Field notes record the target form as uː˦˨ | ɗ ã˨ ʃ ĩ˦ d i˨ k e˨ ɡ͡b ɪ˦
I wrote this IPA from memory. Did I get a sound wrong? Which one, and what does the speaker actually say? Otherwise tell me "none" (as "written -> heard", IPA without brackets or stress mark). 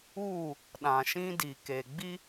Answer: ɪ˦ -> i˦